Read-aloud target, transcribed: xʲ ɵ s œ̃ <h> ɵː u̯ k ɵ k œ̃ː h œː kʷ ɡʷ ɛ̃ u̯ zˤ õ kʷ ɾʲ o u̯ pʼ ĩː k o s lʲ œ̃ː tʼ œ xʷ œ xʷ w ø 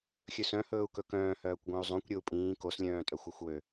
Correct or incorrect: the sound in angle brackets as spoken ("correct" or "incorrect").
correct